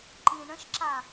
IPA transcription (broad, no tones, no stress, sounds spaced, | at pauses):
ǃ ĩ ɳ ə̃ ʃ ǁ a